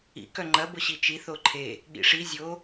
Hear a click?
yes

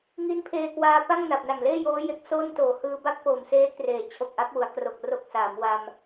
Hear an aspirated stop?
yes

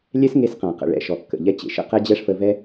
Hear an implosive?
no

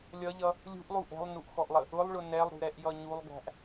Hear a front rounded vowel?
no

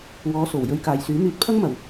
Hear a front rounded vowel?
yes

